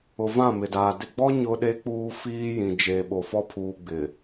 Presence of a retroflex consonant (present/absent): absent